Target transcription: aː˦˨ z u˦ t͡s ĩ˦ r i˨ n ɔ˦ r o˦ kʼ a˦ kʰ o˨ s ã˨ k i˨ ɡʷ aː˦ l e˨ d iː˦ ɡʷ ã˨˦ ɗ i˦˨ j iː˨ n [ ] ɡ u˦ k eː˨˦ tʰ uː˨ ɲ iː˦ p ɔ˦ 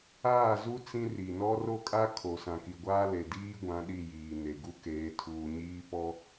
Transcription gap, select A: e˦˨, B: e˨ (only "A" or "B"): B